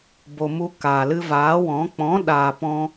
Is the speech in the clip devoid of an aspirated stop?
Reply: yes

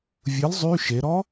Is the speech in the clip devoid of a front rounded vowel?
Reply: no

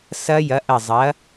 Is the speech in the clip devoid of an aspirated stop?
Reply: yes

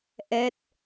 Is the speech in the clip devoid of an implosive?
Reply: yes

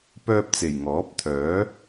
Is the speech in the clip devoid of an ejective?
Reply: yes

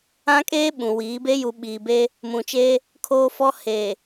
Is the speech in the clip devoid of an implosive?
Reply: no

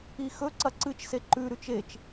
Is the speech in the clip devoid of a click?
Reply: no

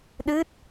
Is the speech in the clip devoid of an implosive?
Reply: no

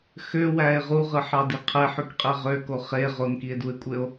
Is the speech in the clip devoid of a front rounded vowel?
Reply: no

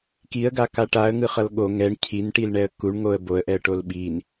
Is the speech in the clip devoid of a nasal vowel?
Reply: yes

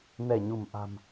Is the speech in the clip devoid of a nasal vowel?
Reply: yes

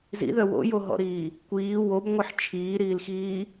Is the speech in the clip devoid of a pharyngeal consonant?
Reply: no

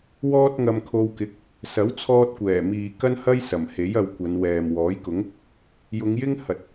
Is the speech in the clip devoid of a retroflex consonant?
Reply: yes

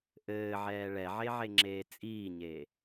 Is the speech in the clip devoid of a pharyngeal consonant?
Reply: no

